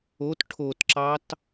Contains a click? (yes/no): yes